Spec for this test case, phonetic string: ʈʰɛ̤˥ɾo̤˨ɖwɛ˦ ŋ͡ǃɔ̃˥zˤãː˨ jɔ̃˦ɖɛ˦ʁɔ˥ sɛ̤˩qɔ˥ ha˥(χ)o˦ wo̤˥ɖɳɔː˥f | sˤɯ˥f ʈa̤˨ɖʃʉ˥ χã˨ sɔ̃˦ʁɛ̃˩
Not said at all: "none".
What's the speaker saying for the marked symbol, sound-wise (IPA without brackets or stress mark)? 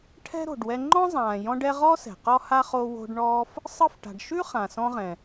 χ